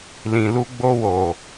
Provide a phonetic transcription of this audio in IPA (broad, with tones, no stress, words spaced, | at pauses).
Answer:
lĩ˨lu˧ɡ͡bo˧wo˨